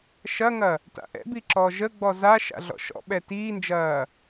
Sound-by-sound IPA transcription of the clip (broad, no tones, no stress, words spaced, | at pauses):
ʃɐŋɐ | ta̰ʔɛ̰bi ǁɔʒəɡ͡bɔ za ʃa̰ɮɔ̰ʃɔ̰ɓɛ tiːnd͡ʒɐː